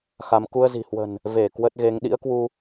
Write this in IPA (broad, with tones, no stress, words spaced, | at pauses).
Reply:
xa˧m ku˧ə̯zi̤˨˩hwə̤˨˩n | ve˧˩ kwə˦˥t̚ɣe˨˦ŋ ɗḭ˧˥ə̯kwu˧